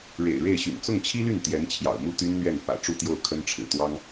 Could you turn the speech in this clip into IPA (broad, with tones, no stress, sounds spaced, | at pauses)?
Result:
ɻ ḛ˨˩ ɪ̯ ɻ e˥˩ ɪ̯ ɕ y̰˨˩ n t͡s ʊ˥˩ ŋ t͡ɕʰ i˥ l y˥˩ n t̪ j ɛ˧˥ n t͡ɕʰ j ɑ̰˨˩ ʊ̯ m u˥˩ t̪ y˥ n n̪ ɥ ɛ˥˩ n f ä̰˨˩ ʈ͡ʂ u˥˧ t̪ j o˥˩ ʊ̯ kʰ ə˥ n ʈ͡ʂʰ ɻ̩˨˩ t̪ w ɑ˥ ŋ